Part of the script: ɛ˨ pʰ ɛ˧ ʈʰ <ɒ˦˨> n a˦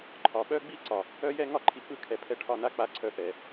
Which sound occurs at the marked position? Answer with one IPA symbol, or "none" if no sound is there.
ɒ˦˨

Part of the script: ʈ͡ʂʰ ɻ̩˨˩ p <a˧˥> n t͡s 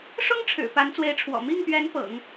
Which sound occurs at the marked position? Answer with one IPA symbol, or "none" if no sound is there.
a˧˥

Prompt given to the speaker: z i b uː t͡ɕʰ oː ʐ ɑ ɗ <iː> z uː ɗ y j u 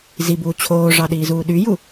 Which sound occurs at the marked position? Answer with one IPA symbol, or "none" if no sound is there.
iː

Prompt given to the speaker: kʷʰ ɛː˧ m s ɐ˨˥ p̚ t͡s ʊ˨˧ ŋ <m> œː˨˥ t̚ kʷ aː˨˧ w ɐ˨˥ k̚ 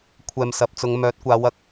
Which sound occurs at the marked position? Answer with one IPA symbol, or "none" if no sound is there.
m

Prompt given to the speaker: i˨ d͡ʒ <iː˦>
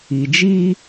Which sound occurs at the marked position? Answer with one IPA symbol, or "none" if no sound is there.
iː˦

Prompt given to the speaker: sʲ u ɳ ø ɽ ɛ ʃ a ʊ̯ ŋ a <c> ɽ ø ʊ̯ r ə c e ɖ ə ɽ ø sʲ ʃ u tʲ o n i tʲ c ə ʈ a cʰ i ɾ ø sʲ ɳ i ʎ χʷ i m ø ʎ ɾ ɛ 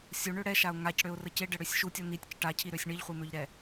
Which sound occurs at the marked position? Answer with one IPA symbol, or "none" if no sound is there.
c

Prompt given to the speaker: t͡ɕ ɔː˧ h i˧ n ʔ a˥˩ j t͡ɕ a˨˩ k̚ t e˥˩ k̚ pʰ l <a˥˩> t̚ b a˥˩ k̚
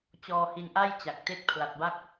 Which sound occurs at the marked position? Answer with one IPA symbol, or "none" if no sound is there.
a˨˩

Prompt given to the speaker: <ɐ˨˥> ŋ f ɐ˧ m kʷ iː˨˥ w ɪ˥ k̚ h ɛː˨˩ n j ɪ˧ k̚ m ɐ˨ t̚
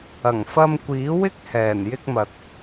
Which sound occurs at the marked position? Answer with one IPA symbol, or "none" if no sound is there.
ɐ˨˩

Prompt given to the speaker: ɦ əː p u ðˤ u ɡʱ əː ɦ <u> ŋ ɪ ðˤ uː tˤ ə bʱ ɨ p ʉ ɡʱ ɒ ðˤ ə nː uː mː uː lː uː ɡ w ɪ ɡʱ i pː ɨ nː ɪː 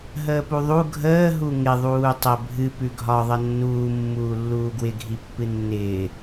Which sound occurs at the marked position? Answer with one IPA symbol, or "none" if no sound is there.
u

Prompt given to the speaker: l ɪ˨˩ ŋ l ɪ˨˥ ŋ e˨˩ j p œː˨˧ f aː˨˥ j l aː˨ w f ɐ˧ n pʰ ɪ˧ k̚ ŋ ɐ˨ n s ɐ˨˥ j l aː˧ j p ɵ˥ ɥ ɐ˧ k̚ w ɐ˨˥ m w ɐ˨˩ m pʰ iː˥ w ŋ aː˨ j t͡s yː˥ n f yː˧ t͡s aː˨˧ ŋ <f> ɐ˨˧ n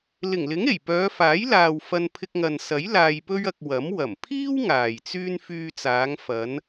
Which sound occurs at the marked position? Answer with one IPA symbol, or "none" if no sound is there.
f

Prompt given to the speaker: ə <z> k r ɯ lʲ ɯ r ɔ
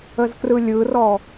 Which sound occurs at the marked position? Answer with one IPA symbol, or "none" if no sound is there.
z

